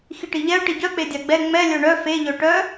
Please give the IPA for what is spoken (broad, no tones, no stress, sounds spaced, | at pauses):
x i ʈ i ʎ ɛ ʊ̯ ʈ i ɟ œ k͡p e dʲ a ɡ͡b ɛ ŋ͡m ɛ lʲ œ ɳ œ f e ʎ œ ʈ œ